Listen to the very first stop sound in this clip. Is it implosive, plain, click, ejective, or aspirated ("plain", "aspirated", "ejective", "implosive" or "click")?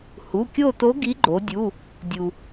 plain